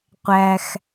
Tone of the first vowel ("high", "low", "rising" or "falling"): low